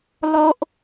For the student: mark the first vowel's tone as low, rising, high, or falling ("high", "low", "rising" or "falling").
high